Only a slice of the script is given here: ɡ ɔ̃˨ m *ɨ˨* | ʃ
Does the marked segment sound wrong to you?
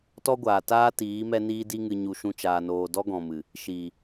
no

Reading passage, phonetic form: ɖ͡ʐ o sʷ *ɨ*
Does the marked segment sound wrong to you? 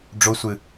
no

